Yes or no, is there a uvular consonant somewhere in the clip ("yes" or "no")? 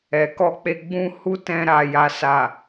no